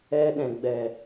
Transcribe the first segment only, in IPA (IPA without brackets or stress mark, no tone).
ɛ